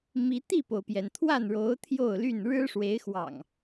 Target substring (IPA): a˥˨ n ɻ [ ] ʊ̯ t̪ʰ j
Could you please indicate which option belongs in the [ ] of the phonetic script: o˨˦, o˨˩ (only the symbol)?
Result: o˨˦